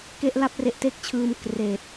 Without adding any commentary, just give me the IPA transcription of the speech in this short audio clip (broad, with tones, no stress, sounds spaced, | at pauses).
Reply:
k e˥˩ ʔ l a˥˩ p̚ r e˦˥ ʔ t e˥˩ k̚ t͡ɕʰ ɯː˧ m k r eː˨˩ t̚